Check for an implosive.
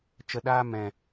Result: present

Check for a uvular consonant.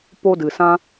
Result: absent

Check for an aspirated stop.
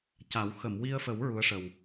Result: absent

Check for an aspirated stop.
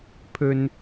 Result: present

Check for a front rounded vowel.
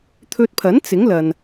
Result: absent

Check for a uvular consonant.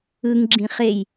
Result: present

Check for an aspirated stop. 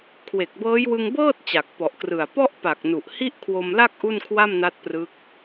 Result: present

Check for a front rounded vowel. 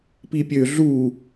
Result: present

